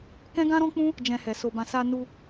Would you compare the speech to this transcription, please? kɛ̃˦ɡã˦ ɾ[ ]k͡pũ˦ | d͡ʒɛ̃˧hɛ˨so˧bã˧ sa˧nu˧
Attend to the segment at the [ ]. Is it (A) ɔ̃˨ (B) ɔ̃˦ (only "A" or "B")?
B